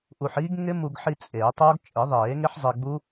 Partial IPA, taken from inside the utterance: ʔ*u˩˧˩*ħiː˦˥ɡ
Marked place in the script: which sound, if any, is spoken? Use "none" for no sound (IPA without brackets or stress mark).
u˧